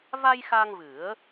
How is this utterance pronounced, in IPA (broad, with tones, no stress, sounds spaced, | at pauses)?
v a˧ j x a˧ ŋ v ɨ˨˩˦ ə̯